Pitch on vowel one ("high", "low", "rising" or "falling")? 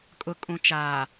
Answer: low